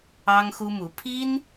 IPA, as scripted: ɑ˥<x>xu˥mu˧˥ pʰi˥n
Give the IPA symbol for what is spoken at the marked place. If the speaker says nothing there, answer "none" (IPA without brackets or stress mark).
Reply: ŋ